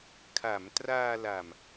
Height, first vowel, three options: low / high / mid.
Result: low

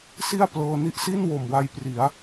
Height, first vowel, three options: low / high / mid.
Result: high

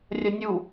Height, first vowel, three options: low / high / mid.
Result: low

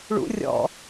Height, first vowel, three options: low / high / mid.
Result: high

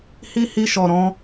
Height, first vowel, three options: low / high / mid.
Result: high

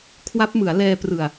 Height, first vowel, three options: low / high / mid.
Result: low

